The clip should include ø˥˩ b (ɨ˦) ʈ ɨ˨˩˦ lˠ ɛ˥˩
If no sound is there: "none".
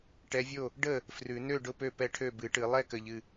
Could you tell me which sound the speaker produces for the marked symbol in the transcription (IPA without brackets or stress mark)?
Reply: ɨ˨˩˦